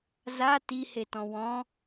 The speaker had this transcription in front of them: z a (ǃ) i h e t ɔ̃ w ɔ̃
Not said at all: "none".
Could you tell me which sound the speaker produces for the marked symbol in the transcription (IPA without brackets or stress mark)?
t